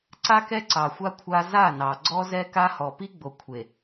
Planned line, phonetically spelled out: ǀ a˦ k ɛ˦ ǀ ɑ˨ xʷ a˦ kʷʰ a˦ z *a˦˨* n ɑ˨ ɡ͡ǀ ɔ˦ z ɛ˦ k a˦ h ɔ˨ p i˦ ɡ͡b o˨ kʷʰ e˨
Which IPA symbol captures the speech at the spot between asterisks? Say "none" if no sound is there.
a˦˨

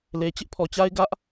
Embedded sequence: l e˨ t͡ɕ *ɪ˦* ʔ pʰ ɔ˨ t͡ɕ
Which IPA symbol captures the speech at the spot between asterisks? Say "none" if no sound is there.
ɪ˦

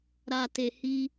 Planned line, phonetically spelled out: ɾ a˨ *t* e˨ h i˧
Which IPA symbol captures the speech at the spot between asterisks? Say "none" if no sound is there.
t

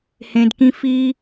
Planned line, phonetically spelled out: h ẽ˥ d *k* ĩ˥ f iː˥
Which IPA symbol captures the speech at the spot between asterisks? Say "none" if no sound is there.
k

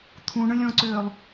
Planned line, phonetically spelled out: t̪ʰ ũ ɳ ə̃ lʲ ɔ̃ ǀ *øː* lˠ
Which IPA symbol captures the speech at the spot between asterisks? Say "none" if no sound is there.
øː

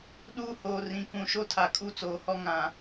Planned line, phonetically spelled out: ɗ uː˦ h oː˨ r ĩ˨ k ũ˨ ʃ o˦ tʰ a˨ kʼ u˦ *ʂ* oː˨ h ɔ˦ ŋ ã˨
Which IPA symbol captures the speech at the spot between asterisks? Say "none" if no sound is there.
t͡s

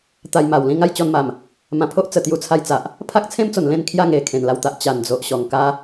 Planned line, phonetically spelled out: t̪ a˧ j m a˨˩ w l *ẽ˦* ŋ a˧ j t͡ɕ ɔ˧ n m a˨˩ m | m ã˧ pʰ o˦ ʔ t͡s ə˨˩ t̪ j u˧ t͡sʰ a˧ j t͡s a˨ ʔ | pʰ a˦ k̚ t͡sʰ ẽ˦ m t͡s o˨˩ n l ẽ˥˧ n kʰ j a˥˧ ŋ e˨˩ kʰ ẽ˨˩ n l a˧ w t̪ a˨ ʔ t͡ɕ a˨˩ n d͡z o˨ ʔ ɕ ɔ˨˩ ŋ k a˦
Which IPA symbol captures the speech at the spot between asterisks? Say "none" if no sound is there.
ĩ˦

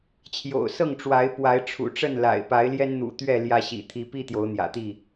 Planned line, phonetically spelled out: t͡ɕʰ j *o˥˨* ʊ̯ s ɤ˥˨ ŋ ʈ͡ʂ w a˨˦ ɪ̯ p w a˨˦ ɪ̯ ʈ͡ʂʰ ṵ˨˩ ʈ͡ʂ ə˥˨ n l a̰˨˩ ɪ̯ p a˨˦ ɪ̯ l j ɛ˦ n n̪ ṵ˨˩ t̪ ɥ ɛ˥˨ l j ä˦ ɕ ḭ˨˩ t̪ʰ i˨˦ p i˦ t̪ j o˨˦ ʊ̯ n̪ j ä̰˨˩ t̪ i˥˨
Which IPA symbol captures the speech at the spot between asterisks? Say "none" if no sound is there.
o̰˨˩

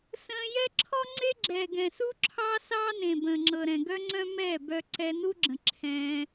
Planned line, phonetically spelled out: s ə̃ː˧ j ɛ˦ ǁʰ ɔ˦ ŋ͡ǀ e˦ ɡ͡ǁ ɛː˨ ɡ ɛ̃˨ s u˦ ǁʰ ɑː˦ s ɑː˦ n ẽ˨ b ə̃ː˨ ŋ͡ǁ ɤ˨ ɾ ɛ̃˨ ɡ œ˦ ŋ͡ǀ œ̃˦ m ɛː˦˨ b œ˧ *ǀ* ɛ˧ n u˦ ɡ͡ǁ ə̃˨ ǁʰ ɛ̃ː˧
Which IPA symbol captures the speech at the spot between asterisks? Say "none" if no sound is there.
ǀ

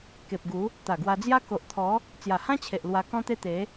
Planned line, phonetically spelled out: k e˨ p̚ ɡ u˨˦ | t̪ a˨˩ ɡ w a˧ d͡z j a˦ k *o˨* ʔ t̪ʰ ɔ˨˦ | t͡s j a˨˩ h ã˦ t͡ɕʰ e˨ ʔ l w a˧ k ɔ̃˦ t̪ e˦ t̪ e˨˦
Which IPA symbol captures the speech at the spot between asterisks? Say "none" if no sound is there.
o˨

